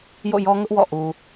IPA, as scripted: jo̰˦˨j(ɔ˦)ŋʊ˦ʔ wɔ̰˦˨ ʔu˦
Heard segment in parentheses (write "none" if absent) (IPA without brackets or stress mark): ɔ˦